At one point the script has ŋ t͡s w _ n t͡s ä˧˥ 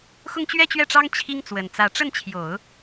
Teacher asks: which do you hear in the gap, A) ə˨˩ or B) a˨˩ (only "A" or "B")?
A